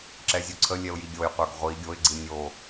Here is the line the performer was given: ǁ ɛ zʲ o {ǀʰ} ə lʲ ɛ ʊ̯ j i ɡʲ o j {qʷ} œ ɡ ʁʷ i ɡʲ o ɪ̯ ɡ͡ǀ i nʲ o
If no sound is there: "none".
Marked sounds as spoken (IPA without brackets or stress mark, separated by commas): ǀʰ, qʷ